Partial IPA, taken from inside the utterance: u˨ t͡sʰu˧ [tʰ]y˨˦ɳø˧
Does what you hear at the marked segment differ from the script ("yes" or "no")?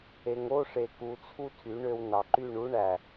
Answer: no